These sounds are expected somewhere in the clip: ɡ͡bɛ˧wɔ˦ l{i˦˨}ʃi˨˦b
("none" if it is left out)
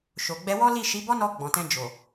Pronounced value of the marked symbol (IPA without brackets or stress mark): i˦˨